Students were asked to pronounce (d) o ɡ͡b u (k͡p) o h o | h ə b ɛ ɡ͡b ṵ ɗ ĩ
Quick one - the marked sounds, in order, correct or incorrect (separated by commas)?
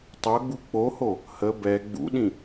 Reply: incorrect, correct